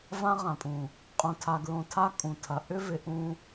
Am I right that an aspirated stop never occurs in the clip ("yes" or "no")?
no